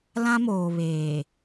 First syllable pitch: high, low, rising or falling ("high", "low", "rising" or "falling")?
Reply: high